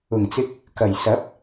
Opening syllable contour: low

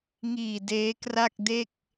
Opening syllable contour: low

